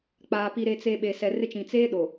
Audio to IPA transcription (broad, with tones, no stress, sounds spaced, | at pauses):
k͡p aː˨ p i˨ ɾ e˨ t͡s e˨ ɓ e˨ s ɛ˨ r ɪ˦ t͡ʃ ĩ˨ t͡s eː˦ ɗ o˨